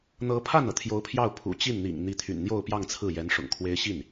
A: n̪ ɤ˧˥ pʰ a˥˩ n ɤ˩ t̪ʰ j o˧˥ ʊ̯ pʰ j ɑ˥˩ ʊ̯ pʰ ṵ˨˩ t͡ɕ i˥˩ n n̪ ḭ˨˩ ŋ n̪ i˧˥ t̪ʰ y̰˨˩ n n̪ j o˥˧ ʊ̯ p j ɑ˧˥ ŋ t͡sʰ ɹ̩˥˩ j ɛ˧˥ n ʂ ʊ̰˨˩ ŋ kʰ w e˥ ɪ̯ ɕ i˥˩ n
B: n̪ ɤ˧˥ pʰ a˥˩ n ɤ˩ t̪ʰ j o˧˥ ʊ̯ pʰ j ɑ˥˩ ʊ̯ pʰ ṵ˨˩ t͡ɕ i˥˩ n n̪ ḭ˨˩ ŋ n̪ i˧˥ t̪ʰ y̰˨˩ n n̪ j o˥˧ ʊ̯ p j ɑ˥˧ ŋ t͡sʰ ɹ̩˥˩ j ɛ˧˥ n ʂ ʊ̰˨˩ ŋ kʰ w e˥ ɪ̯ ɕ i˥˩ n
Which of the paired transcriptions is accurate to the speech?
B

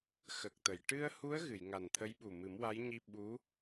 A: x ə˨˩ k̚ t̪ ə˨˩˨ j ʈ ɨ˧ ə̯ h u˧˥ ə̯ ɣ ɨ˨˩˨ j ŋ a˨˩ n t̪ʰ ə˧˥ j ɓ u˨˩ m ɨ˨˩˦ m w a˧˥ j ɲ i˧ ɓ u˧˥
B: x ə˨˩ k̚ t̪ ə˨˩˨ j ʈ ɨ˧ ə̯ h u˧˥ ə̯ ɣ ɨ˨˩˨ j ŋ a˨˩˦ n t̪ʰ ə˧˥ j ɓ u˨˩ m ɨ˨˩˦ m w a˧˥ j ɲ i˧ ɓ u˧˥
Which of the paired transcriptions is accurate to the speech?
A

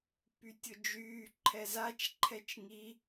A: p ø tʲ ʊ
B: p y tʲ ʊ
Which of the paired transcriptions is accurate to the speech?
B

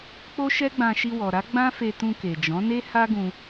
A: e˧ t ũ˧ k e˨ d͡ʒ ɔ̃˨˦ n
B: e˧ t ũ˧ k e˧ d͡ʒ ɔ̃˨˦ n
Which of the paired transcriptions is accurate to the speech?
A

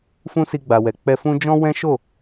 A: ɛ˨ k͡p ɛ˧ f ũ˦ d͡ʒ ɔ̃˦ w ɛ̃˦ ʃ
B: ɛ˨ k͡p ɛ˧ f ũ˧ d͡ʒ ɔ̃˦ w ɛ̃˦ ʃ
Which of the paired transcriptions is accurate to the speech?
A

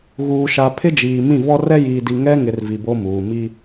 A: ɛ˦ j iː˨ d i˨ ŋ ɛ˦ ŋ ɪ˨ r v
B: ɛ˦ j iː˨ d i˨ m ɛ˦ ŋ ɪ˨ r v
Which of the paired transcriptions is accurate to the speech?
A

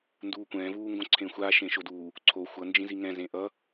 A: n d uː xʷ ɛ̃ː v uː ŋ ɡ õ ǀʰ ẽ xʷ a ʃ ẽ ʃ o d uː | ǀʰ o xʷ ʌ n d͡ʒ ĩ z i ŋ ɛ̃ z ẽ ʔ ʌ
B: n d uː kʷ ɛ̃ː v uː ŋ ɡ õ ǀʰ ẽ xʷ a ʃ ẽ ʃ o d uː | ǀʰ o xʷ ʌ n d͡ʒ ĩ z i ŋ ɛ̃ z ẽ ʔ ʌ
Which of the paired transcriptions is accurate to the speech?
B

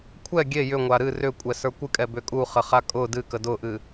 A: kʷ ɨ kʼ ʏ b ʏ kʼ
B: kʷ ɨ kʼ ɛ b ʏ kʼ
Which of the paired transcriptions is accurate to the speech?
B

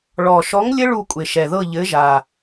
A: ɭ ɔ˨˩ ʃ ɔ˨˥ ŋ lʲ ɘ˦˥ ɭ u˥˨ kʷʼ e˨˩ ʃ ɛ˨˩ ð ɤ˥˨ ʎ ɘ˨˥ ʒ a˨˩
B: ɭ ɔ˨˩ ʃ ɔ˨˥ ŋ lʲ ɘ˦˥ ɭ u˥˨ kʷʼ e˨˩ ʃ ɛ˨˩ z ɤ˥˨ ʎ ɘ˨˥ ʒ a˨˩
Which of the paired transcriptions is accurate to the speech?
A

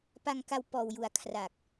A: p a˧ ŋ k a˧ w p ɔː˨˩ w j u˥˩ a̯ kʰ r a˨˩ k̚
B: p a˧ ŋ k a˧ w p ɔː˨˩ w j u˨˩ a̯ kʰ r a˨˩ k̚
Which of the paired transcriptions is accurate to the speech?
B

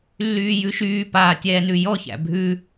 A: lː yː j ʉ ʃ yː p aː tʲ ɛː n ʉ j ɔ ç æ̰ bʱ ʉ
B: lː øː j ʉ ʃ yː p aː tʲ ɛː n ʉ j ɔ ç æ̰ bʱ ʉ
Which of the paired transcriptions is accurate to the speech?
A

